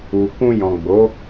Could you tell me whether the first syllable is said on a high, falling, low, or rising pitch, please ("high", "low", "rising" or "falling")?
low